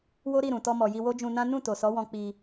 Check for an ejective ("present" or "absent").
absent